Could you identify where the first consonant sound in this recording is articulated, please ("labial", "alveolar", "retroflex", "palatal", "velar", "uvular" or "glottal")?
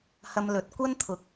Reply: glottal